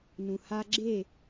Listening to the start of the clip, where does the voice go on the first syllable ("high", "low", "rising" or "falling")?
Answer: low